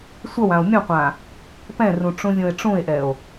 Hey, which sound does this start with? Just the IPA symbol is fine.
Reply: sʷ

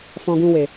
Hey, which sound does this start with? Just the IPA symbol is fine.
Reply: f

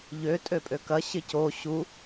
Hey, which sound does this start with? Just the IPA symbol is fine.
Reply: ʎ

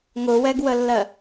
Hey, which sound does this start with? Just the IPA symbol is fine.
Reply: ŋ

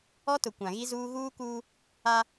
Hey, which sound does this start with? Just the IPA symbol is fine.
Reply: ɔ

